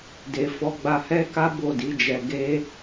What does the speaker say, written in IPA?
d e˨ f ɔ˨˦ ɡ͡b a˧ h ɛ˦ k a˦ b o˦˨ d i˨˦ d͡ʒ ɛ˧ ɡ e˧

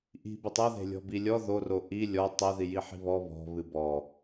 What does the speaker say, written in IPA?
ʔ i̤ b ɨ tˤ o ð e̤ lʲ ɔ̤ b i lʲ ɔ ð o r o ʔ i lʲ ɔ tˤ e ð i j i ħ i̤ β ɔ β ɔ̤ β ɨ b ɔ

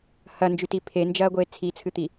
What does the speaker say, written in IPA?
h ɐ n d͡ʒ ʉ t i pʰ e n d͡ʒ ɐː ɡʷ eː t͡sʰ i t͡sʰ ɨ t̪ i

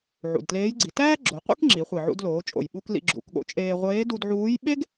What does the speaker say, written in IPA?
ʕ ṵ˩ d t l eː˧˥ j ɡ͡ǀ i˩˧ t æː˥ ɡ͡ǁ o˩˧ qʷ ḭ˥ k ŋ͡ǁ i˩˧ χʷ i˩ ʕ ṵ˧ d l oː˩˧ t͡ʃʼ o̰˩ j ɓ u˧ k l ḭ˧ ɡ͡ǁ ṵ˩˧ k ɠ o̰˧˥ t͡ʃʼ eː˧ ʁʷ eː˧˥ d u˧ d ʕ uː˧˥ j ɓ e˥ ɡ

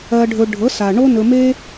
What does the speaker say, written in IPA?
ɜ˧ ɖʱ ɵ˧ ɖʱ ɤ˨˦ s a˨ ɳ o˦ n ɵ˧ m e˦

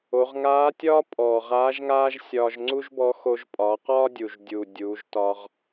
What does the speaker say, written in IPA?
o˩˧ ʁ ŋ aː˧˥ tʲ ɒː˥ pʼ ɔː˩ ʁ aː˧˥ ʒ ŋ aː˥ ʒ sʲ ɒː˧ ʒ ŋ͡ǀ u˥ ʒ b ɔ˧˥ x o˧ ʒ pʼ ɒː˩˧ q ɒː˥ dʲ u˩ ʒ dʲ uː˩ dʲ uː˩˧ ʒ t ɒ˧ ʁ

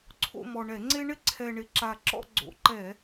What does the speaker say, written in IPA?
ǀʰ o̰˦˨ m ɔ˨˩ ɳ ɛ˧˩˧ ŋ͡ǀ e˦ ɳ ɪ˦ ǀʰ ɛ˨˩ ɳ ɪ˧˩˧ ǁ a˨˩ ǁ ɔ̰˦˨ ɡ͡ǀ o̰˧˩˧ ǃ ɛ˧˩˧

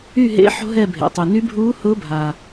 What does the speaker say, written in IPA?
y˥˨ ɦ ḛ˧˥ ħ o̤˥ ɦ ɛ˥˨ bʱ ḛ˩ tˤ y˩ n y˧˥ bʱ uː˧˥ h ʊː˧˥ bʱ a˩

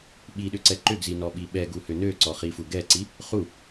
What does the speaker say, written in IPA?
ɓ i ɗ ʏ ǀ ɛ ǃ ʏ ɡ z i n ɔ ɓ i ɓ ɛ ɡ u h ʏ n ø ǀ ɔ χ i f u ɡ ɛ ǀ i | χ u

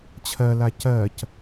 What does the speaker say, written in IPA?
t͡ɕʰ ɜ l a c ɜ c

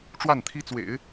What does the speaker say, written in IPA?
ʈ͡ʂ w a˥˩ n t̪ʰ i˥ t͡s w ḛ˨˩˦ ɪ̯

